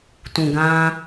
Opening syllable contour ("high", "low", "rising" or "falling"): low